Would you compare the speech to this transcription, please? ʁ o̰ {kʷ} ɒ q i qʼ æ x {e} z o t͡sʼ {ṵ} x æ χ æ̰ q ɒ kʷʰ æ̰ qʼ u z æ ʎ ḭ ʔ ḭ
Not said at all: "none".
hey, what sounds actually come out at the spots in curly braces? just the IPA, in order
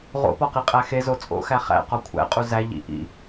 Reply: p, e, o̰

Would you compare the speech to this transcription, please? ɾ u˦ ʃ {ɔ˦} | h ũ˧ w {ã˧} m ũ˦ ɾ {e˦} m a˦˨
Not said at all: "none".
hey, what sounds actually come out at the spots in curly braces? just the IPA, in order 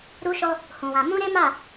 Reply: ɔ˦, ã˧, e˦

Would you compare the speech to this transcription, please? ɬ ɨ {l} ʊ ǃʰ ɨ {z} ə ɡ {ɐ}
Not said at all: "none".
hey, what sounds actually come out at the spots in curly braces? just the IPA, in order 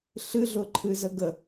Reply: ɮ, z, ə

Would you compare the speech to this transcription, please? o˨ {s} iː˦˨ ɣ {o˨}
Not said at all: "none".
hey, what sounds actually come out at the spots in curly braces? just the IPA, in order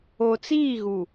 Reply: t͡s, u˨

